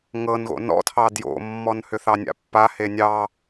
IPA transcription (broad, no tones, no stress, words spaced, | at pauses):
ŋɤnɣo̰ nɔ̰tʰɑ djo̰mːɔn hʏθɑnʲa̰pːa henʲɑ